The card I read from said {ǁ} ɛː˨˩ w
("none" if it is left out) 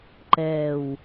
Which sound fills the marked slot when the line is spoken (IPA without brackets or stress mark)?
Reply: ǃ